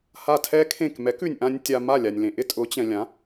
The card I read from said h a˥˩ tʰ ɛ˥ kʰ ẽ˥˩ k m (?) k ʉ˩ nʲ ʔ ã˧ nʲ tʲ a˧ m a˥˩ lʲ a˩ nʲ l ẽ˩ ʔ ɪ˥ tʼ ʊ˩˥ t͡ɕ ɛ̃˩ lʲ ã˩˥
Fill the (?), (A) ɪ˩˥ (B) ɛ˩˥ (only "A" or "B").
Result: B